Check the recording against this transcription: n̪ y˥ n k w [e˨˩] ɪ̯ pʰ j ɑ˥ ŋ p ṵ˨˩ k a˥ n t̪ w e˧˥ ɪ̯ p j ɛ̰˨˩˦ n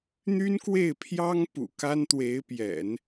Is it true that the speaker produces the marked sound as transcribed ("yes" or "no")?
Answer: no